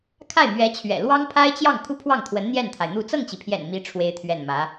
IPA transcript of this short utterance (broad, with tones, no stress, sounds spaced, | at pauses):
kʰ a˥˩ ɪ̯ m ɥ ɛ˧˥ t͡ɕʰ ɥ ɛ̰˨˩ l w ɑ˥ ŋ pʰ a˥ ɪ̯ t͡ɕ j ɑ˥˩ ŋ kʰ u˥ pʰ w ɑ˥˩ ŋ t̪ʰ w ə˧˥ n n̪ j ɛ˥˩ n t̪ʰ a˩ ɪ̯ n̪ u˥˧ t͡s ɤ˥˩ ŋ t͡ɕ i˩ pʰ j ɛ̰˨˩ n m i˧˥ ʈ͡ʂʰ w e˥ ɪ̯ t̪ʰ ɥ ɛ˥˩ n m ä˧˥